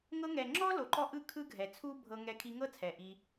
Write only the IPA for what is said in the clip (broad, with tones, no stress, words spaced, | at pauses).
ŋɤ˧ŋɛ˨ ŋ͡ǁɔ˦lo˨ǃɔ˧ ʔɯ˦kʰɯ˦ɡʱɛ˨ t͡sʰu˦bʱɤ˧ŋɛ˧ kʰi˧ŋɤ˦ t͡sʰɛ˨ʔi˧